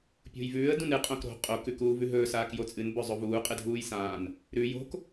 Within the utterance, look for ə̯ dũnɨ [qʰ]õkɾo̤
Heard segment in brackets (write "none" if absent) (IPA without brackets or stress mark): qʼ